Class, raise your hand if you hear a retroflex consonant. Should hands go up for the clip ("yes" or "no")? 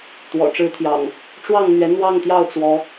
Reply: yes